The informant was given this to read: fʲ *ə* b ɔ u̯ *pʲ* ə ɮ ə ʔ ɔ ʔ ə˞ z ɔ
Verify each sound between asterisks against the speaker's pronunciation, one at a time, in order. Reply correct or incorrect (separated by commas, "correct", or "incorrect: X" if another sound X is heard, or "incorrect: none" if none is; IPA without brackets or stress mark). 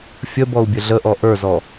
correct, incorrect: bʲ